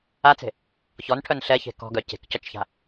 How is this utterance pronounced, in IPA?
a t͡s e̤ | ç ɔ n ʈʰ œ n ɬ ɛ ç e̤ k ɔ̤ ɡ œ c e̤ k c ɔ t͡ʃ ç a̤

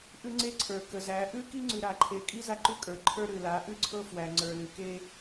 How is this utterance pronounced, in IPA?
ʔ ʉ˦ ŋ͡ǀ e˦ ǀʰ ə˞˨ k ə˨ z æ˨˦ ʔ ʉ˦ k i˦ ŋ͡ǀ ʉ˨ ɾ a˨ ǃʰ e˨ kʼ i˦ z a˦ ǃ ʉ˦ kʼ ə˞˨ ǃʰ ə˞˦ ɾ ʉ˨ l a˨˦ ʔ ʉ˦ ǀʰ ɤ˦ f w æ˨ ŋ͡ǀ ə˞˨ l ʉ˨ k e˦

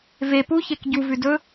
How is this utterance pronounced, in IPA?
v e p u ç e k ɟ u v ʉ d ɵ

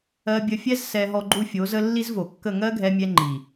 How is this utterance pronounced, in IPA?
ɜ˧ bʲ ə˧ fʲ ɛ˦ z s ɛ˧ ɦ ɔ˧ ɡ͡ǃ u˦ fʲ o˨˦ z ə˦ lː i˦ z v o˨ kː ə˦˨ ŋ ɜ˦ ɡʱ ɛ˧ mʲ ɛ˧ ŋ͡ǃ i˨

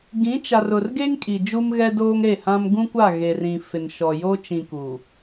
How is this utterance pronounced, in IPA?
ɡ ĩ˨˦ t͡ʃ a˨ r ʊ˨ r ɡ e˦ ŋ kʼ i˨ d͡ʒ u˦ m ɣ ɛ˦ d oː˦ ŋ ɾ e˦˨ h ã˦ m ɡ ũ˦ kʷ a˦˨ ɣ e˨ r ĩ˨ f ɪ˨ n ʃ ɔ˨ j o˦ t͡ʃ ĩ˨ k uː˨

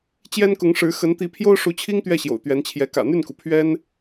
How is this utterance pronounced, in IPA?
t͡ɕ j ɛ˥ n k ʊ˧˥ ŋ ʂ ɻ̩˧˥ x ə˧˥ n t̪ i˧˥ pʰ j o˥ ʊ̯ ʂ u˧˥ t͡ɕʰ i˥ ŋ t̪ ɥ ɛ˥˩ ɕ j o̰˨˩ ʊ̯ t̪ ɥ ɛ˧˥ n t͡ɕʰ j ɛ˧˥ k ä̰˨˩ n̪ y˥˩ n k u˩ pʰ ɥ ɛ˥ n

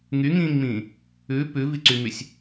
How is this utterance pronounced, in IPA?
ŋ y ŋ ĩː ŋ m ĩː | ʉ p ʉ v i ǀ y m y sʲ

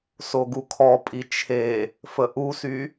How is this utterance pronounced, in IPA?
s o ɡ u kʰ ɔ pʼ i t͡ʃʰ e | f ə ʔ u s y

